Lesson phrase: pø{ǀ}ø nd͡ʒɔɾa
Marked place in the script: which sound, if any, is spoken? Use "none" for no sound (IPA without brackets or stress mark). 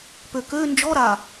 k